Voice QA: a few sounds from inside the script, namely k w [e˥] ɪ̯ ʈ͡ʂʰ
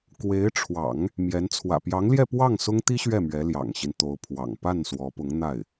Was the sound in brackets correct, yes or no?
no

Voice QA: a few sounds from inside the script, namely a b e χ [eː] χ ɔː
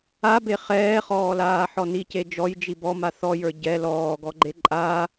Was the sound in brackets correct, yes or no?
no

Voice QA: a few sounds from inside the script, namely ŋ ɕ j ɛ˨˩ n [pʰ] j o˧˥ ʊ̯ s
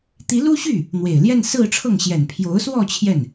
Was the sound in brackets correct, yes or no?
yes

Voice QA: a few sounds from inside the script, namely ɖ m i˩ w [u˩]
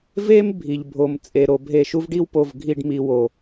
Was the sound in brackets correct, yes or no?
no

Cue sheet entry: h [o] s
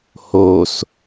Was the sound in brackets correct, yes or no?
yes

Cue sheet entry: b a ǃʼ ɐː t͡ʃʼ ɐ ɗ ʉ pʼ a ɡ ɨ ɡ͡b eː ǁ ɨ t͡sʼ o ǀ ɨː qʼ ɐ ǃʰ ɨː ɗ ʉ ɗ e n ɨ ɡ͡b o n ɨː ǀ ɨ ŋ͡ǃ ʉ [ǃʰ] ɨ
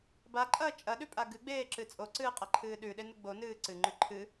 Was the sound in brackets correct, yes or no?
yes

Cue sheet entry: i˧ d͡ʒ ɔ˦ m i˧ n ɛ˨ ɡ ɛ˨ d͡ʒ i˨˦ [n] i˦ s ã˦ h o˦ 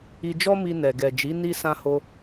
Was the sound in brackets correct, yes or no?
yes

